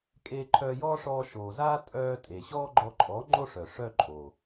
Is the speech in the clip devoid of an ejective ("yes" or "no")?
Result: no